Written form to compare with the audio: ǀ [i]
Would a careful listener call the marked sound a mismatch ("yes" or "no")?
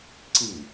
no